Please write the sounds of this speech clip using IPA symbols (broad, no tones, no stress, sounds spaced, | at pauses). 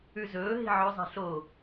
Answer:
ʉ z ɵː ɦ i̤ ʕ ɵ zˤ i̤ ɬ o